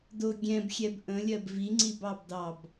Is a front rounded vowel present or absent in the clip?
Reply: absent